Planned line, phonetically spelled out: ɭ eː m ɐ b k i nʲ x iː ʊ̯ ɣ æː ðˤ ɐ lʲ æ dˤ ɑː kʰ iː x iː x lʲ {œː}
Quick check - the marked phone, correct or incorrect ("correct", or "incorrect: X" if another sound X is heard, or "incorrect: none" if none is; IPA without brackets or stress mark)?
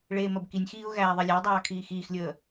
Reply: incorrect: əː